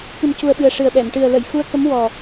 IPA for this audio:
k ɨ˨˩ m c u˨˩ ə̯ ɓ ɨ˨˩ ə̯ ʂ ɨ˨˩ ə̯ ɓ ɛ˨˩˨ m ʈ ɨ˨˩ ə̯ l ə˨˩˨ j x u˧ ə̯ k ə˧˥ m w ɔ˨˩

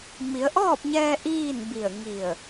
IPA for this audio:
m i˩˧ ə̯ ʔ ɔː˥˨ p̚ ɲ ɛː˧ ʔ iː˥˨ n b i˧˩ ə̯ ŋ i˧˩ ə̯

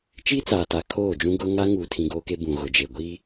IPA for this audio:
t͡ʃ iː˦ t͡s aː˨ t a˨ kʰ oː˦˨ d͡ʒ ũ˦ ɡ ʊ˦ ŋ a˦ ŋ uː˨ tʰ ĩ˨ ɡ oː˦ k e˦ b ũ˨ ɣ ʊ˨ d͡ʒ e˨ ɡʷ iː˦

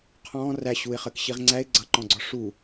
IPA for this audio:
qʰ ɔ̃ː r æ ɕ u ɪ̯ χ əː k ɕ i ʁ ŋ͡ǀ æ ɪ̯ ɡ͡ǀ ʌ ǃ ɔ̃ ɡ͡ǀ ɔ ʂ u

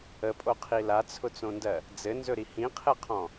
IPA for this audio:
ə pʼ o qʰ i l a t͡sʰ ʊ t͡s õ n d ɜ | d͡z ɘ n z ɵ ɾ i h ĩ qʰ ɘ qʰ ɔ̃

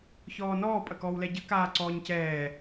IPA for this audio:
ç ɔː n ɔː pʼ ɐ k ɔː w l ɛ ɟ ə k aː ǀ ɔː ɲ c ɛː

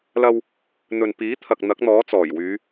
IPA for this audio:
l ɐ˧ w | n̪ ɵ˨ n p iː˨˥ t̪ʰ ɐ˨ k̚ n̪ ɐ˨˥ k̚ n̪ ɔː˨˥ t͡s ɔː˨˩ j w yː˨˧

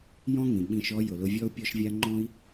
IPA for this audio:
j ɔ̃˥ ŋ ĩ˩ ɓ ĩ˧ ʃ ɔ˥ j ʊ˩ l ʊ˧ vʲ ɔ˥ u̯ pʲ ɔ˥ ʃ vʲ a˥ ŋ͡ǃ ɔ̃˥ i̯

